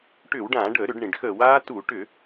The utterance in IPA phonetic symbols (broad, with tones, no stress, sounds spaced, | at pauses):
ʈ ʏː˧˩˧ w ɖ ãː˧˩˧ ɖ əː˧˩˧ ɾ ʏ˧˩˧ ɖ ɳ ĩ˩ ɖ x əː˧˩˧ w aː˦˥ t u˧˩˧ ʈ ʏ˧˩˧